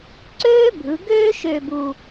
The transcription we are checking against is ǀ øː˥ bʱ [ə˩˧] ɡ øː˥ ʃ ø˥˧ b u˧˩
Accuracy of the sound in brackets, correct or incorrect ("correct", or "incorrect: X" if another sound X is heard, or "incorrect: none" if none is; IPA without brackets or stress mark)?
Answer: incorrect: ɯ˩˧